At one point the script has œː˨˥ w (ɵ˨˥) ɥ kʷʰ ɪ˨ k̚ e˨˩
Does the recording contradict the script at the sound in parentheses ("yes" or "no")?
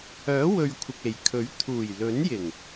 yes